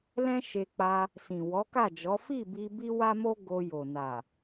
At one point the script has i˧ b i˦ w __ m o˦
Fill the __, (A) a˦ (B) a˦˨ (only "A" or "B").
A